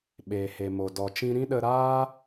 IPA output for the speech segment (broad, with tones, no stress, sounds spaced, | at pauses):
ɓ eː˨ h e˨ m o˨ d ɔ˨ t͡ʃ ĩ˦ ɾ ĩ˦ ɗ ə˧ ɾ aː˦